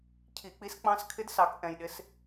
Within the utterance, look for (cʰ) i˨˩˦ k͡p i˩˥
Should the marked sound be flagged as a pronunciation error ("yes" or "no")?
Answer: no